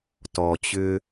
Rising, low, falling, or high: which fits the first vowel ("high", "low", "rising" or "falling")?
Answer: low